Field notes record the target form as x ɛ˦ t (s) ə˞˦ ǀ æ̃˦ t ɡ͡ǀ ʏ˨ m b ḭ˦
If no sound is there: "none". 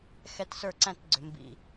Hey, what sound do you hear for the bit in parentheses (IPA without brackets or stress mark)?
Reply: s